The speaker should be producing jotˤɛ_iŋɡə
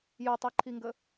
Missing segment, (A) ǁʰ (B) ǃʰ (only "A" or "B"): B